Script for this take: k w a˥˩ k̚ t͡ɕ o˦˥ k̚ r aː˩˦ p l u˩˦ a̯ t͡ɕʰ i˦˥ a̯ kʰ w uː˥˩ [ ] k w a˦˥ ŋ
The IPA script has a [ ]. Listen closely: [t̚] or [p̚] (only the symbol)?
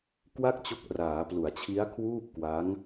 p̚